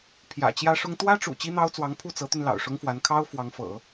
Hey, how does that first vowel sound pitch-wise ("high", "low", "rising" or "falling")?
low